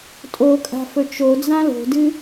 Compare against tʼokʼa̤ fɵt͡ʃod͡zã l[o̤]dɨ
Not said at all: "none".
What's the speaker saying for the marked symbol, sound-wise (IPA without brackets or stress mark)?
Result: o̤